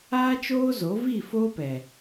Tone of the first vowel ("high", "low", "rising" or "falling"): high